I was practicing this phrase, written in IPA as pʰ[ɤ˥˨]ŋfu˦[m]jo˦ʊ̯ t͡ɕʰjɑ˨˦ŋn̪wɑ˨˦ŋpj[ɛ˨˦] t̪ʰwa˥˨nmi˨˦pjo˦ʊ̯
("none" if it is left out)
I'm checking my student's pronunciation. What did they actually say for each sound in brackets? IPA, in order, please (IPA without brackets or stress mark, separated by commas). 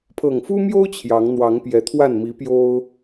ɤ˨˩, m, ɛ˨˦